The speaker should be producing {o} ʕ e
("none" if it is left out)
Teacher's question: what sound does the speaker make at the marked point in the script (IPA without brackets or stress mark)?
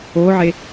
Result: o